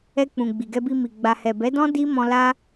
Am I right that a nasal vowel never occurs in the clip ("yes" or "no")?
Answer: no